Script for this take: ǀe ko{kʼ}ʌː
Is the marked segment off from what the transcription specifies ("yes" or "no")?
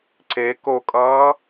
no